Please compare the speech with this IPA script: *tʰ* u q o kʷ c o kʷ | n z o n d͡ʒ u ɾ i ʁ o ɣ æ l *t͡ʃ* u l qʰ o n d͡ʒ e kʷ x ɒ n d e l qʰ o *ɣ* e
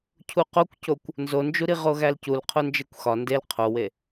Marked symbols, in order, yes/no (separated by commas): no, no, no